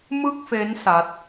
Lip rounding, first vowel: unrounded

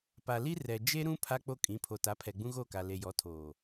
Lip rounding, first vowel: unrounded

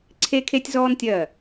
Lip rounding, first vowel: unrounded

